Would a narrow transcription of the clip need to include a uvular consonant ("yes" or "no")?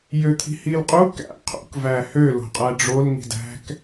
yes